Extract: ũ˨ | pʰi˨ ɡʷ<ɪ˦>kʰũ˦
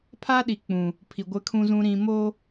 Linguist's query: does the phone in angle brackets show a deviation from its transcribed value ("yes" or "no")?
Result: no